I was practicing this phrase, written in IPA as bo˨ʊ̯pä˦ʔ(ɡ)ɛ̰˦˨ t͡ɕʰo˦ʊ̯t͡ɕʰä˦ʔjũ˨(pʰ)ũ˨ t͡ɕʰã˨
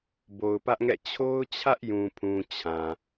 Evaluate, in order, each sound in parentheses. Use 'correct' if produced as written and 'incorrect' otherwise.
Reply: incorrect, correct

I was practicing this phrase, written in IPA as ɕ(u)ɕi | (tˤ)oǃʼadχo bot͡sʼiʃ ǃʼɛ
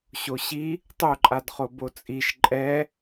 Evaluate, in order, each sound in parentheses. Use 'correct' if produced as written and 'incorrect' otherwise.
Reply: incorrect, correct

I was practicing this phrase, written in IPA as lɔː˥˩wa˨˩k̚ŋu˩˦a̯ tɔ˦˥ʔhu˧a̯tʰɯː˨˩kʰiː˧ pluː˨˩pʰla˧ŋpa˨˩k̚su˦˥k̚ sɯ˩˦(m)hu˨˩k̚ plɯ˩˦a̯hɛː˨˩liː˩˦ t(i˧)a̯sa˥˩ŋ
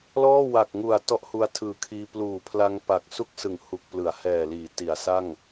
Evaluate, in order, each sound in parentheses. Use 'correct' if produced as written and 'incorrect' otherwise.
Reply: incorrect, incorrect

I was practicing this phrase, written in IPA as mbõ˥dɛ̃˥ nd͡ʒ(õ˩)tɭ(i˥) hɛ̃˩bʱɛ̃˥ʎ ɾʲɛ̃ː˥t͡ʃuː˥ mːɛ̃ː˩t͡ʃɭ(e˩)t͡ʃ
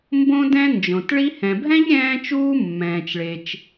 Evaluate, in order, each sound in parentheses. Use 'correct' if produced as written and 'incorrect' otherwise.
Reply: correct, correct, correct

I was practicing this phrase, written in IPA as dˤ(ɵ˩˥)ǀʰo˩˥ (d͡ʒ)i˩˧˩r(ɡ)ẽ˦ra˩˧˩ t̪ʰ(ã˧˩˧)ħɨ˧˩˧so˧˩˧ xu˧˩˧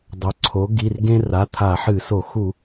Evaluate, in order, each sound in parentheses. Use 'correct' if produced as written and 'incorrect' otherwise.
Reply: correct, incorrect, correct, incorrect

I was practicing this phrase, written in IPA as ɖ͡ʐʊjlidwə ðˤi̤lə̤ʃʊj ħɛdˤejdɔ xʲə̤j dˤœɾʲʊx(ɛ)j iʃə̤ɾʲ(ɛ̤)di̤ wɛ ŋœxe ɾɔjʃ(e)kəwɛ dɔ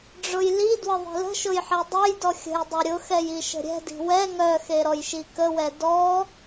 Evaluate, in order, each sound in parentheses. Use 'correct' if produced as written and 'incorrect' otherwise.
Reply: correct, correct, incorrect

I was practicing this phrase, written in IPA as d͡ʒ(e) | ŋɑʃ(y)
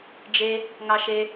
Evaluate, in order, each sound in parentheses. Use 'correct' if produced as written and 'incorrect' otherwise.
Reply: correct, incorrect

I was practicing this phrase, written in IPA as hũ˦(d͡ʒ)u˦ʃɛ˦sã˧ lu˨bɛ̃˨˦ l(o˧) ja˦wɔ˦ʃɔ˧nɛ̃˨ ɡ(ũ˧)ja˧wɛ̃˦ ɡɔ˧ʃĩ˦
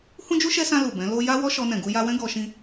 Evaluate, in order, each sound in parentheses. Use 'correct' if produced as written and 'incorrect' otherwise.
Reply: correct, correct, incorrect

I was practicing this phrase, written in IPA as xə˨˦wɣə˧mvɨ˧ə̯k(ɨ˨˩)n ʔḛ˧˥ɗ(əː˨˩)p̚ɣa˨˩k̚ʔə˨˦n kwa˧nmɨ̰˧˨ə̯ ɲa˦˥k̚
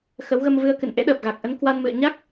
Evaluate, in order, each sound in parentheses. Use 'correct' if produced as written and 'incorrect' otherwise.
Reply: incorrect, correct

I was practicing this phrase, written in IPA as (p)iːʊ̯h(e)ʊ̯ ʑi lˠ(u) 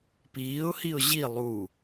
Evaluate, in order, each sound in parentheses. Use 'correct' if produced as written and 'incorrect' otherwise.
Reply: correct, incorrect, correct

